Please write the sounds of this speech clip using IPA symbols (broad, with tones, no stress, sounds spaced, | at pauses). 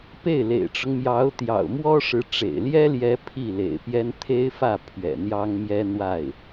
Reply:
p e˥˩ ɪ̯ l ḛ˨˩ ɪ̯ ʈ͡ʂ ʊ˦ ŋ m j ɑ˧˥ ʊ̯ t̪ j ɑ̰˨˩ ʊ̯ m w ɔ˥ ʂ ɻ̩˧˥ ʈ͡ʂ ḛ˨˩ ɪ̯ l j ɛ˥ l j ɛ˧˥ pʰ i˥˩ l ḛ˨˩ ɪ̯ p j ɛ˥ n t̪ʰ e˥ ɪ̯ f ä˥˩ pʰ ɥ ɛ̰˨˩ n̪ j ɑ˥ ŋ m j ɛ˥ n̪ w a˥˩ ɪ̯